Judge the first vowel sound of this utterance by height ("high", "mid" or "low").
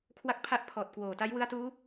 low